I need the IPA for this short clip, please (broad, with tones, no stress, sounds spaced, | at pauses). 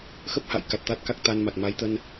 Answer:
x ə˦˥ p̚ h a̰˧˨ j k a˨˩ t̚ t̪ a˦˥ t̚ k a˦˥ k̚ t̪ a˧ n m a˨˩ t̚ m a˨˦ j t̪ ə˧ n